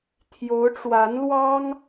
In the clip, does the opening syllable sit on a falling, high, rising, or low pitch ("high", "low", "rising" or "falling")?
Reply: rising